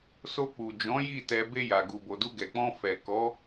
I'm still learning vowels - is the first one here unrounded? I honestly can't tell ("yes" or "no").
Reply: no